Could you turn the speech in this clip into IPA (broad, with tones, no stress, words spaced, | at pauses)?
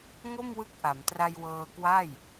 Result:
ŋo˥˩mwɯ˦˥k̚ʔa˩˦mtra˧j wɤː˧kwa˥˩j